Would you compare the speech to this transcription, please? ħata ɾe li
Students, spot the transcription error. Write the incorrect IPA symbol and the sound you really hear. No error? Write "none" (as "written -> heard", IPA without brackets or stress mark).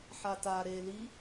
none